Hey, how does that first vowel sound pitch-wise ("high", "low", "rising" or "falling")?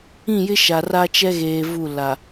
falling